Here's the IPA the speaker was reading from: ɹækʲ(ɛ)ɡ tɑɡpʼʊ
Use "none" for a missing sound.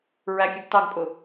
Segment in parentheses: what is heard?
ɛ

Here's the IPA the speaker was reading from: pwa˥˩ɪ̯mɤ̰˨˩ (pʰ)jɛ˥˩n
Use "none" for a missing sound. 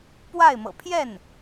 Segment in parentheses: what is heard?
pʰ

